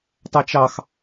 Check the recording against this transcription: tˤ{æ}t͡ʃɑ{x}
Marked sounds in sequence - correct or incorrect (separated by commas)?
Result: correct, correct